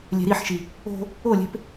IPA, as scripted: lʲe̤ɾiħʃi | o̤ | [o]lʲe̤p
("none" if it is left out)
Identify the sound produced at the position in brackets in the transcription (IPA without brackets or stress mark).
o